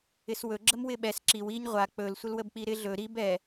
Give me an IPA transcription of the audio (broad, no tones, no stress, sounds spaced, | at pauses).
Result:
ɪ s w ɵ ɡ͡ǁ ə m w ɪ ɓ ɛ s ǁ i w i ɲ ʁʷ a k͡p ɵ l sʷ ə l w ə b k͡p i ɾ ɪ ɮ ɵ ɾ i b ɛ